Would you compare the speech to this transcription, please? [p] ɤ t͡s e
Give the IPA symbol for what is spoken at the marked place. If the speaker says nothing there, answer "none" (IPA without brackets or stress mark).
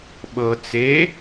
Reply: ɓ